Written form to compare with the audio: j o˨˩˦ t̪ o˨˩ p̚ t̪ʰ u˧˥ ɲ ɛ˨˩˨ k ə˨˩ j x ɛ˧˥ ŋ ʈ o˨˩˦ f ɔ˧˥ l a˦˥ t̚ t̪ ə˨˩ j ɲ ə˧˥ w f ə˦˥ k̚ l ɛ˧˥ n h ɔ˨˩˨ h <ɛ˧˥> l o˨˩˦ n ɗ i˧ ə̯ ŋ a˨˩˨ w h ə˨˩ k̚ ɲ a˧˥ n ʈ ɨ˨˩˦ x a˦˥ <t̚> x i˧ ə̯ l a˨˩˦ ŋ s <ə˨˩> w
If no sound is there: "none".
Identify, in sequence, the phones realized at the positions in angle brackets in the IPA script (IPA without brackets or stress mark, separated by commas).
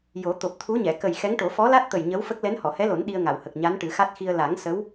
ɛ˧˥, t̚, ə˧˥